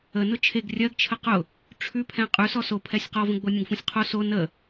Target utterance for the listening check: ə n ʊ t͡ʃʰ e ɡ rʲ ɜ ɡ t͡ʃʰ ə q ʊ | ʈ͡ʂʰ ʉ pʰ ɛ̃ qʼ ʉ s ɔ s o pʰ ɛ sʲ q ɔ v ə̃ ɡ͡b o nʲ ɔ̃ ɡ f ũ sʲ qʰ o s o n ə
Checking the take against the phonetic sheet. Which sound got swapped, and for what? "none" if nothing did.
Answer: none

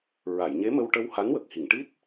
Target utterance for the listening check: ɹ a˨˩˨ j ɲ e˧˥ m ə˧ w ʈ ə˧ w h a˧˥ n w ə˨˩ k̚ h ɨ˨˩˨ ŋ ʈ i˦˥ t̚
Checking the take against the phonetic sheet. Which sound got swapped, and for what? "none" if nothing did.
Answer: ɨ˨˩˨ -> i˨˩˨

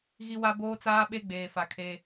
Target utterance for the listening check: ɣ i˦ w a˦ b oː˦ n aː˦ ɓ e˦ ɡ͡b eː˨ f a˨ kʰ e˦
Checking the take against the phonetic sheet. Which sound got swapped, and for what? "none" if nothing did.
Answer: n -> t͡s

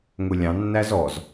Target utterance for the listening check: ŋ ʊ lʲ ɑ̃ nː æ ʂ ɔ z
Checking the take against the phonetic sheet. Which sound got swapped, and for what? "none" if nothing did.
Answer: ʂ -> z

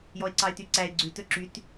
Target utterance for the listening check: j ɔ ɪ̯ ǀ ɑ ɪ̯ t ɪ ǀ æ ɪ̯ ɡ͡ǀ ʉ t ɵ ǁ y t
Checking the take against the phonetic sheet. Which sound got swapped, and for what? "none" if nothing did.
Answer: ɪ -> y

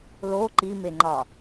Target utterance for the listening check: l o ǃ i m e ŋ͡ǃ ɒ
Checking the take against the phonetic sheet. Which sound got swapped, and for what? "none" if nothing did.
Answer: none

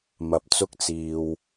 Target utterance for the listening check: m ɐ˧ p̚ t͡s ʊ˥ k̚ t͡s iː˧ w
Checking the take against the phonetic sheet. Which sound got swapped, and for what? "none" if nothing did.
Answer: none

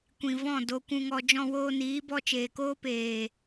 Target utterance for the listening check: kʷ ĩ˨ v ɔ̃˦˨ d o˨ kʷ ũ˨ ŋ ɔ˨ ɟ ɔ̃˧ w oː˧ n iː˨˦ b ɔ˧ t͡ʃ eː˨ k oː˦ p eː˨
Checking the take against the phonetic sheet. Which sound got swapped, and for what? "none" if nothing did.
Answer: ɟ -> d͡ʒ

